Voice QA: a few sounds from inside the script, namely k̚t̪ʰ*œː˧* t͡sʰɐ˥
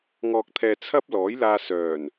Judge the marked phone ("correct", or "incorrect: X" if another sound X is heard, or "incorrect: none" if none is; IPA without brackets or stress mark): incorrect: ɛː˧